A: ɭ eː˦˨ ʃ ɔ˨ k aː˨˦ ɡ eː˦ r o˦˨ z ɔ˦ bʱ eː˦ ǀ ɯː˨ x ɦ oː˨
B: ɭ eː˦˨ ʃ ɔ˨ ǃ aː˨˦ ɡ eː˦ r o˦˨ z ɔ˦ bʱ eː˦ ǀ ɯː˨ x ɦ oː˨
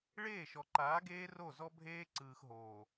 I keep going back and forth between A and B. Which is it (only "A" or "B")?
B